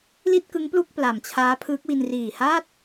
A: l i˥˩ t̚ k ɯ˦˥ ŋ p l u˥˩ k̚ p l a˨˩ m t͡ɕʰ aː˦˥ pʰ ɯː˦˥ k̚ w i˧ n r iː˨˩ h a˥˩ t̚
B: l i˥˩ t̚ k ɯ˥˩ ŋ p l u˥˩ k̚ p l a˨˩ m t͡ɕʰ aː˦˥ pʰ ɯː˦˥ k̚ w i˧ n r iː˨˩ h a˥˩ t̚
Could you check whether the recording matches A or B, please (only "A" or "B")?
A